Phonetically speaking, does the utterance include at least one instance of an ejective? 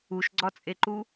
yes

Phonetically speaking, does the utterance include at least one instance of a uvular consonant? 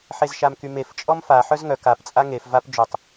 no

